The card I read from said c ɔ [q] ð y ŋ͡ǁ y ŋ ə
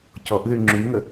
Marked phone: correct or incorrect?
incorrect